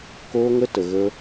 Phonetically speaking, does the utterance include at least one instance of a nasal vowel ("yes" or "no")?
no